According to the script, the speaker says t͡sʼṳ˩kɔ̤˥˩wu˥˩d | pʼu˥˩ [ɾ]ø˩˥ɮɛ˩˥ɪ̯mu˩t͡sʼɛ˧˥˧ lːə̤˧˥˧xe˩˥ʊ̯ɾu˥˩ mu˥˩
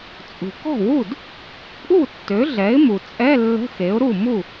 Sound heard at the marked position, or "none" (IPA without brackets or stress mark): tː